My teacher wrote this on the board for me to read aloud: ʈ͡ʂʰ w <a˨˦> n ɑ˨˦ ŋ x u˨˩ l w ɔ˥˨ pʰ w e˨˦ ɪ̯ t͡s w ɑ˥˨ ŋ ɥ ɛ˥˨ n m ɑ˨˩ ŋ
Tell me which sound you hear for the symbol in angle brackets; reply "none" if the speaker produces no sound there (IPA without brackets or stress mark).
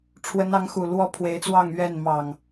ə˨˦